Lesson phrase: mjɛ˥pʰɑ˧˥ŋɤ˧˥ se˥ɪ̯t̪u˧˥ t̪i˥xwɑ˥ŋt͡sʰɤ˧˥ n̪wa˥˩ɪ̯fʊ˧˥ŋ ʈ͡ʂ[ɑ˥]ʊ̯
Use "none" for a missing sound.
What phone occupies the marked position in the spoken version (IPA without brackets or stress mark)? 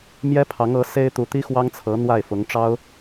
ɑ˥